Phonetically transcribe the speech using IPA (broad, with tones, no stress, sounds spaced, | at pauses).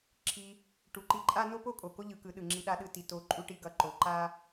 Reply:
ǁʰ i˧ | ʈ u˩˧ ǃ i˧ ǃʼ a˥ n o˥ p o˥ kʼ o˩ k o˥ ʎ ɯ˩˧ k ɯ˩˧ ɗ ɯ˩ ŋ͡ǁ i˧ ɗ a˧˥ ɗ ɯ˧ t i˩ t o˧˥ ǃʼ u˥ ʈ i˧˥ ɡ ʌ˩˧ ǃ o˩˧ ǃ a˥